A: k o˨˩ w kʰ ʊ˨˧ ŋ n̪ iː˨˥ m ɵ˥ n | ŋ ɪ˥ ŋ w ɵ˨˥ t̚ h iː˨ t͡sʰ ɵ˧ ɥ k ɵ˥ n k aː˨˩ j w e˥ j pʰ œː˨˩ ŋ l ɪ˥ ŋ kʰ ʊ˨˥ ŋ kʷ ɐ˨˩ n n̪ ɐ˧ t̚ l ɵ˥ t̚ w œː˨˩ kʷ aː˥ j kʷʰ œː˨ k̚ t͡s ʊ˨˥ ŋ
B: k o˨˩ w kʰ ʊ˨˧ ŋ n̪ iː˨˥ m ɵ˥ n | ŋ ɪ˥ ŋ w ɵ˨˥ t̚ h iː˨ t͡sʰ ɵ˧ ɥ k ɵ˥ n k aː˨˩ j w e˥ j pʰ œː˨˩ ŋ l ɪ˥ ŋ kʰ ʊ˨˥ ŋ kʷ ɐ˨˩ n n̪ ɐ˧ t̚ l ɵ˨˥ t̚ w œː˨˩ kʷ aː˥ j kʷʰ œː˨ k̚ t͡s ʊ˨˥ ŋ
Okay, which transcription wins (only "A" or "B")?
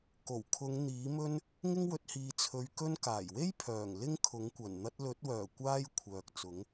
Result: B